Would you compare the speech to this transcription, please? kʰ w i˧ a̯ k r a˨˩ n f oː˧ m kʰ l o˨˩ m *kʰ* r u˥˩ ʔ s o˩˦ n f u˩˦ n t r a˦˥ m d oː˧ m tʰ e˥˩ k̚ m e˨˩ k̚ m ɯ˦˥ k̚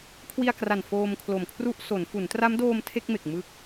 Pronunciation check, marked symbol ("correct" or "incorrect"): correct